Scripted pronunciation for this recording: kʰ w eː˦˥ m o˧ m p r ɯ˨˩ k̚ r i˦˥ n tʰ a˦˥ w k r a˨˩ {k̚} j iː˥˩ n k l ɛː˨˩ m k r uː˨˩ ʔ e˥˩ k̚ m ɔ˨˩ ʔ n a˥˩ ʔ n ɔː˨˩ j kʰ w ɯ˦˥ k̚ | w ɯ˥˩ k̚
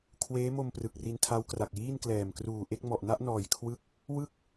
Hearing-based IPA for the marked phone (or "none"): k̚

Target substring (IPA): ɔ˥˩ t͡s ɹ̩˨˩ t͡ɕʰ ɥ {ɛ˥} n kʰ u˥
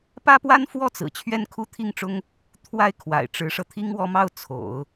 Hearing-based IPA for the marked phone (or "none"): ɛ˥˩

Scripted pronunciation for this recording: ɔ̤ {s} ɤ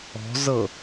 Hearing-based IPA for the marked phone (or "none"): z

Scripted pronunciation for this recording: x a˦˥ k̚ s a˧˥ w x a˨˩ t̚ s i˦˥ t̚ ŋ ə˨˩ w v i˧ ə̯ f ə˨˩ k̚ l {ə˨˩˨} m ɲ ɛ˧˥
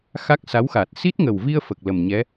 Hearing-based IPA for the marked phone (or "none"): ə˨˩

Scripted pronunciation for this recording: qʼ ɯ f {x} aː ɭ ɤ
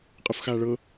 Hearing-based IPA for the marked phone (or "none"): x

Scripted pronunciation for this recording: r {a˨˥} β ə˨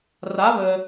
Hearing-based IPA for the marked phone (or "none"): a˨˥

